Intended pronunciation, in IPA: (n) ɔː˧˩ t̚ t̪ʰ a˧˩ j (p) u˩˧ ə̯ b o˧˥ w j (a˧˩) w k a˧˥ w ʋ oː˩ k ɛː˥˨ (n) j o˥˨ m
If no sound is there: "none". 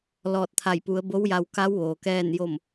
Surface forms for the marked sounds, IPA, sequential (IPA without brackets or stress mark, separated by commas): l, p, a˧, n